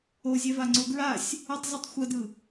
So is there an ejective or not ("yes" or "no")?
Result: no